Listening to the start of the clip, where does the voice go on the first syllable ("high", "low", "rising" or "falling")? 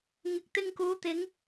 rising